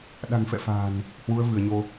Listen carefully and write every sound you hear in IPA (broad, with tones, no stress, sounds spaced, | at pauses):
ɗ a̤˨˩ ŋ f ɛ̰˧˨ f a̤ː˨˩ n | h w u˨˦ ə̯ v ɨ˧˩ ə̯ ɲ o˧